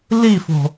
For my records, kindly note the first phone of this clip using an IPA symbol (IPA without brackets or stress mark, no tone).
l